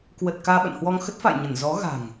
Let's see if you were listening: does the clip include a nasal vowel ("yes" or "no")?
no